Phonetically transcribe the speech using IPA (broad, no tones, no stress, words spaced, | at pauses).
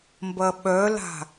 mbɐɓœla̤